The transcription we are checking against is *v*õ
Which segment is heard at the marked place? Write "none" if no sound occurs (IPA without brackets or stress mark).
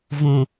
v